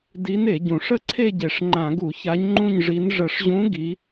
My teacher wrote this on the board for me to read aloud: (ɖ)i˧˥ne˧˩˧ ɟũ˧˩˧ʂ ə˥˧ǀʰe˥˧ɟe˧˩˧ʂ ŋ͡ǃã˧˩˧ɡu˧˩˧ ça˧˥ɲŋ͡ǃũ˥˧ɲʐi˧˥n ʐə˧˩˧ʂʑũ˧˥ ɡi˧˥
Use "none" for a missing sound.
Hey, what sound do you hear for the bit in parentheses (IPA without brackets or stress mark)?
d